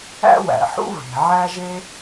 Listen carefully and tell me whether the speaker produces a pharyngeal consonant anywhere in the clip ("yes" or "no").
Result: yes